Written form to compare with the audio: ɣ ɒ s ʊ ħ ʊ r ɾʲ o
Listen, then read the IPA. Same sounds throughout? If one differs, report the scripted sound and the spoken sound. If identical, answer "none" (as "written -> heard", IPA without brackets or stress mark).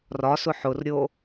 ɣ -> r